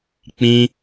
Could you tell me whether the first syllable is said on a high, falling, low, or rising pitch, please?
high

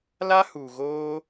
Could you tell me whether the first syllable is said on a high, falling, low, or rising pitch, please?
high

